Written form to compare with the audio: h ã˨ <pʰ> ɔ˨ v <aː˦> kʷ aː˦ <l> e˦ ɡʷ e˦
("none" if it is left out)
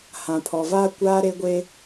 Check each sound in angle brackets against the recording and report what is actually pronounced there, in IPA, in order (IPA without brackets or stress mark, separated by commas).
pʰ, aː˦, ɾ